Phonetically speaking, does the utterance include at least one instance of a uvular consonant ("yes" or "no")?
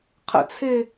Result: yes